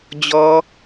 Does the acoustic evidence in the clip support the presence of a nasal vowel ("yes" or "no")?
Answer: no